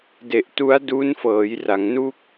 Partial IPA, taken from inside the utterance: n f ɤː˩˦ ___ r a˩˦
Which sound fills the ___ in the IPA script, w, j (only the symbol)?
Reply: j